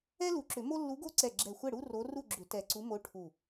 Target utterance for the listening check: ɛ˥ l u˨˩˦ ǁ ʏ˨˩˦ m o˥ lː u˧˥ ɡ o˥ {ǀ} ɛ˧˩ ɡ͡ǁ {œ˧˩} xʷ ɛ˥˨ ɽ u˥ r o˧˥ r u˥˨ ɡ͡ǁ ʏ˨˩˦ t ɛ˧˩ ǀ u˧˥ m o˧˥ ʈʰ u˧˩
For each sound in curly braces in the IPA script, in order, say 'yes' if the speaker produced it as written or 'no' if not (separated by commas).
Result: yes, no